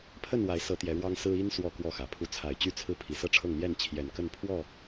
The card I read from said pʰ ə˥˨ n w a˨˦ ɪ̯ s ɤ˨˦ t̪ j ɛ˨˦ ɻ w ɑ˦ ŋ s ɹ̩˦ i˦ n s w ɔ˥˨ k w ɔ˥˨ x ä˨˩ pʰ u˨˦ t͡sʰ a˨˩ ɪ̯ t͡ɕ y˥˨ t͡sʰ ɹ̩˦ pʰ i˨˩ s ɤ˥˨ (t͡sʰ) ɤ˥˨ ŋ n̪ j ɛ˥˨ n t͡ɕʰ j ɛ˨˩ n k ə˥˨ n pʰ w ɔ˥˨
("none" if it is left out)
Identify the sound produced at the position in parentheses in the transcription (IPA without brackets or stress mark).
ʈ͡ʂʰ